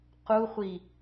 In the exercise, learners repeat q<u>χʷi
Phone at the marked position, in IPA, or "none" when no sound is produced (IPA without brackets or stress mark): u